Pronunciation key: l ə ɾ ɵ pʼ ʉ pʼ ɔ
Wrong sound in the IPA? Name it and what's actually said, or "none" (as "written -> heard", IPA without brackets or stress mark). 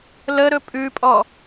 none